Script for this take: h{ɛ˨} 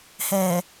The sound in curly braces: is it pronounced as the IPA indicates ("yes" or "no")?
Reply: yes